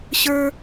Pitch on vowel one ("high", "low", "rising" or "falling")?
high